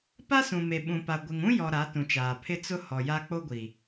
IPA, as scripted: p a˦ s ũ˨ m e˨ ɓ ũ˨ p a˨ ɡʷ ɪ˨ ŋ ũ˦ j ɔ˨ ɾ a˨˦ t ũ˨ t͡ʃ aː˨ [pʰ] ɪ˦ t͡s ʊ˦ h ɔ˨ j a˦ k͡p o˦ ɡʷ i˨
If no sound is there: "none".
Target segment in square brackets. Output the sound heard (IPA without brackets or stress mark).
pʰ